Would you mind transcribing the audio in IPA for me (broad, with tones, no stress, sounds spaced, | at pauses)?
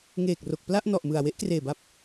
ŋ eː˨˩ k̚ r o˨˩ k̚ p l a˥˩ ʔ n ɔ˨˩ ʔ m ɯ˨˩ a̯ w e˦˥ ʔ k r eː˨˩ b a˦˥ p̚